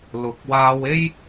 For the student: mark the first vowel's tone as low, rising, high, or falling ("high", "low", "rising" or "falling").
low